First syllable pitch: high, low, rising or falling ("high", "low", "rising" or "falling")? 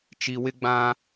low